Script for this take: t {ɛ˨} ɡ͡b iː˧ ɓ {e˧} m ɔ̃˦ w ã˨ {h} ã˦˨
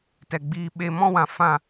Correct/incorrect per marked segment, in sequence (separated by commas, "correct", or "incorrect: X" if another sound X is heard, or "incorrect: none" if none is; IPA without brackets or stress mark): correct, correct, incorrect: f